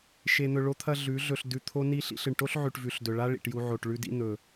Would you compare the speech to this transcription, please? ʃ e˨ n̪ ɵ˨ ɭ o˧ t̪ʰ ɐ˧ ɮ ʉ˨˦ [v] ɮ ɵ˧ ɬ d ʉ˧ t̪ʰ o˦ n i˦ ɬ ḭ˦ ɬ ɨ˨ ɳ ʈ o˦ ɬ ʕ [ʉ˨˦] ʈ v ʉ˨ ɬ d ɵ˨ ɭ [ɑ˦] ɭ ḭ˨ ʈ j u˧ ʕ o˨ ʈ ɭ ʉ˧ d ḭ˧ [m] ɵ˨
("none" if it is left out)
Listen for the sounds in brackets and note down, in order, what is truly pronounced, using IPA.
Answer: none, ʉ˨, a˦, n̪

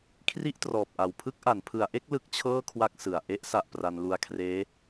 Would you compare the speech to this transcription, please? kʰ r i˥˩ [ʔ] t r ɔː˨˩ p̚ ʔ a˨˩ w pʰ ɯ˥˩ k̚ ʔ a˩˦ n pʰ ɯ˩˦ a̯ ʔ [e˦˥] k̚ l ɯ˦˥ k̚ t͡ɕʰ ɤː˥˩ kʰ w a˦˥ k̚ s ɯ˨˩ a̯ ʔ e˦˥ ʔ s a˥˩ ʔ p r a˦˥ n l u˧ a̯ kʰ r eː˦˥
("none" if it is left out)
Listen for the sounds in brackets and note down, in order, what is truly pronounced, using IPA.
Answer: ʔ, e˥˩

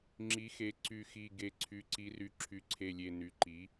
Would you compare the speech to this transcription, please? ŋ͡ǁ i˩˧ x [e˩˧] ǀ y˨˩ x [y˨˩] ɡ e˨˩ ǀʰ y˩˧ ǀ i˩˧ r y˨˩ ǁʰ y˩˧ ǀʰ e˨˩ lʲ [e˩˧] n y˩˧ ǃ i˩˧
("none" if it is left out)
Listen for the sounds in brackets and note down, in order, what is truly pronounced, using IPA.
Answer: e˩˧, i˨˩, e˨˩

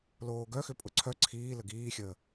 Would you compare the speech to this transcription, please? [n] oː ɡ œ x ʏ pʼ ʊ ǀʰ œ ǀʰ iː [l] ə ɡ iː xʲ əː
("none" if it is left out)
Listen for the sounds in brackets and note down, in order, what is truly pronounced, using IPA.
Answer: l, l

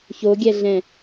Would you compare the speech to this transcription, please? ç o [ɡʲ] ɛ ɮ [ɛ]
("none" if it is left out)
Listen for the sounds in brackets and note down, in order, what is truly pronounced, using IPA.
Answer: ɡʲ, ɛ̃

